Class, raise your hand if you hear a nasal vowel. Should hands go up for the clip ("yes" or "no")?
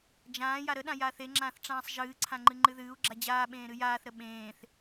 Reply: yes